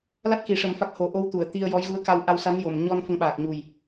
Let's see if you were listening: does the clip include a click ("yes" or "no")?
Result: no